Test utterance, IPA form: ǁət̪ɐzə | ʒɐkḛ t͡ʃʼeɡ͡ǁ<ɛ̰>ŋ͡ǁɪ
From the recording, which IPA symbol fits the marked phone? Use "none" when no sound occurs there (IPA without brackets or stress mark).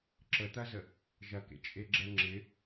ɛ